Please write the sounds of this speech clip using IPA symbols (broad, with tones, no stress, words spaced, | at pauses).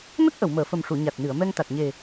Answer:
nə˦˥k̚ ʔə˨˩˨wməː˨˩˨fə˨˩mʂu˨˩˨ ɲa˨˩t̚nɨ˨˩˨ə̯ mɛ˧ŋt̪a˨˩t̚ɲe˨˩